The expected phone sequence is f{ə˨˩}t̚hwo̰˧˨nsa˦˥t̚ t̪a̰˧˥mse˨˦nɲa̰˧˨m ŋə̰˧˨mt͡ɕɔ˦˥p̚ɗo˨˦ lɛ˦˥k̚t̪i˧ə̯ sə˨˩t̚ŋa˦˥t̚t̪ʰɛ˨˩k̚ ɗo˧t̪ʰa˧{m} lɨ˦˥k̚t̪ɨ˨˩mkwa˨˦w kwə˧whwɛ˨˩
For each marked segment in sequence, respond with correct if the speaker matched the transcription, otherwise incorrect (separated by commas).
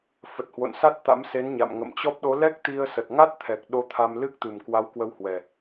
correct, correct